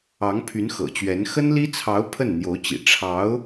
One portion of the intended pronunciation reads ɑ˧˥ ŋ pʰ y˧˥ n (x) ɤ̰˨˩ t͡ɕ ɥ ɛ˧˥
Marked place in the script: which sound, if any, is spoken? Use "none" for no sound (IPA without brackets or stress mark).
x